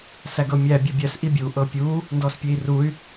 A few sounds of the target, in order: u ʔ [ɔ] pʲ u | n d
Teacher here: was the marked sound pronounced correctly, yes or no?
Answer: no